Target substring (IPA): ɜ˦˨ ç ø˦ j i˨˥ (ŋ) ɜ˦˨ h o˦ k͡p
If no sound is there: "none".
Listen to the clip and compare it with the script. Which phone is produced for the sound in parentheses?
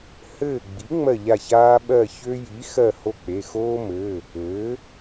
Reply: x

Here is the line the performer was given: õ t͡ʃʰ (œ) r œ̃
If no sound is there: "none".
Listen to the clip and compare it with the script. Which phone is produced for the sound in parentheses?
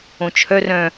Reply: œ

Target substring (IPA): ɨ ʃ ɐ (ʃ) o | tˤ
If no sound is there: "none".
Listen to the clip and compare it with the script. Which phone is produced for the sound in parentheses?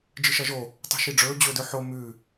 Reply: ʒ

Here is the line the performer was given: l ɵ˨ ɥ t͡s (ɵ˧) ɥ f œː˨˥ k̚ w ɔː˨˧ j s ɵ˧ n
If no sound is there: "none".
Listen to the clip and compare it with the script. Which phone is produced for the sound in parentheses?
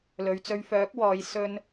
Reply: ɵ˧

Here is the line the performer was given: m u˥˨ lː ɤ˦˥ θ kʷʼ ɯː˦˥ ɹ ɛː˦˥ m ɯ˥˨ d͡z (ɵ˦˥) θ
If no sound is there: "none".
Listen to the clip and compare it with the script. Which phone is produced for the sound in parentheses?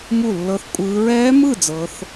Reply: ɤ˦˥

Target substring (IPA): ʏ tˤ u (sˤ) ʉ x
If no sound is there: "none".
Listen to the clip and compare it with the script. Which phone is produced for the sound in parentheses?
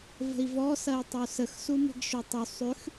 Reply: sˤ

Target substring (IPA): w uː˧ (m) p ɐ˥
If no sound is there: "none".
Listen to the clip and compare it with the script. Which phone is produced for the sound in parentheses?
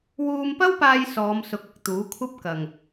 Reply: m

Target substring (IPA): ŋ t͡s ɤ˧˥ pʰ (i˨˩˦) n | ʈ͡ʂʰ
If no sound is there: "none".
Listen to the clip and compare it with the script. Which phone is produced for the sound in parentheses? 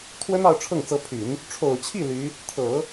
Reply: y˨˩˦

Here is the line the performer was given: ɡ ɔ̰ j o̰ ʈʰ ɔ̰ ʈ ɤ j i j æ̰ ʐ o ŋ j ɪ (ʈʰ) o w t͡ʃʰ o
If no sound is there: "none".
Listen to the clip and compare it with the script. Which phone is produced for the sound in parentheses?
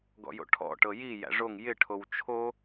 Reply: ʈʰ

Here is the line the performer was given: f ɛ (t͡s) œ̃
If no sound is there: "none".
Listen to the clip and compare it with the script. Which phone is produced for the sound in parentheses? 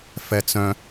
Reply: t͡s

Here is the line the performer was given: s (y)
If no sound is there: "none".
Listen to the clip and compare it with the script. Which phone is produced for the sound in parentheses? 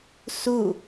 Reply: u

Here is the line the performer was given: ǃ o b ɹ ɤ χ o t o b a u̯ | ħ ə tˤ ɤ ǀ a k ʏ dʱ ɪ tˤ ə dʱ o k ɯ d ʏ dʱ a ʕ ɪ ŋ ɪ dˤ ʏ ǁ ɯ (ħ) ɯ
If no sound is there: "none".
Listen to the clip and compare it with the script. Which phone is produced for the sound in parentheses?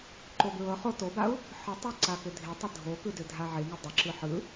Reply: ħ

